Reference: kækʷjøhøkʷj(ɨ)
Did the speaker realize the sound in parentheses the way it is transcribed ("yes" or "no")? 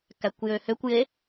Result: no